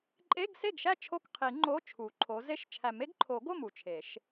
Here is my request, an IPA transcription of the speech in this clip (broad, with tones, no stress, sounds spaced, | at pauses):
ǃʼ e˧˥˧ ɡ s e˥˩ ɡ ʃ æ˥˩ t͡ʃʰ o˥˩ k qʰ i˨˩˦ ŋ͡ǃ o˧˥˧ t͡ʃʰ u˨˩˦ ǃʰ o˨˥ z e˥˩ ʃ t͡ʃʰ æ˨˩˦ m e˨˥ ɡ ǃʰ o˨˩˦ ɡ o˥˩ m u˧˩ t͡ʃʰ e˨˩˦ ʃ